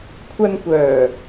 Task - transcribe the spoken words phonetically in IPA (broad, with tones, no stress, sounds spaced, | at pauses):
kʷʰ ɐ˧ n kʷ œː˨˩